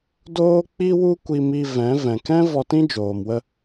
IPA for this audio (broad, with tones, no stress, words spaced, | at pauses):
doː˦k͡pi˦wu˦ kʷi˧mi˧ vɛ̃˨˦ vɛ̃˨k ɛ̃˦ vɔ˧tĩ˦d͡ʒoː˨mwə˧